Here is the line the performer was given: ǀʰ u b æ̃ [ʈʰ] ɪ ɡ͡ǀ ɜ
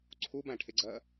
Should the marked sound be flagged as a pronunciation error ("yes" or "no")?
no